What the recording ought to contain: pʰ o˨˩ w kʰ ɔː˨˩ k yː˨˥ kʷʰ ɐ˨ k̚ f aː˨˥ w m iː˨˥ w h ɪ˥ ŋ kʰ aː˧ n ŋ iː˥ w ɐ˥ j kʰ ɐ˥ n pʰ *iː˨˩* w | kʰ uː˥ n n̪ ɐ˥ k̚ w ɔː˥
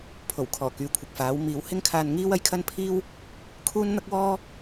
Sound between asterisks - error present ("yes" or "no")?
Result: yes